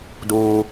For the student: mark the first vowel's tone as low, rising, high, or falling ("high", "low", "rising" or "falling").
high